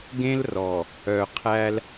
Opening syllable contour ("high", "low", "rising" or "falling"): high